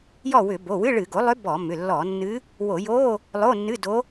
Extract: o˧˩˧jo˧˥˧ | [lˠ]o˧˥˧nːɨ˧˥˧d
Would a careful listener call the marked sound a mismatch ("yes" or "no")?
no